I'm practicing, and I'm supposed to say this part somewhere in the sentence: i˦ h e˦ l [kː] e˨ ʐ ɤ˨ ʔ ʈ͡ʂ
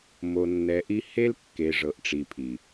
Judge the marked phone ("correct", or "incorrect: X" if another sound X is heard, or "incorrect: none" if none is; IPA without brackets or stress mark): correct